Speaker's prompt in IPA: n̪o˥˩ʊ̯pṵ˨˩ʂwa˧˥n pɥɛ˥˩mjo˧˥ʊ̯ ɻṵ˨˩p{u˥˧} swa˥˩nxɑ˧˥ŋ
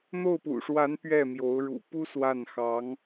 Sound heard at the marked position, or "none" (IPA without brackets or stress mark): u˥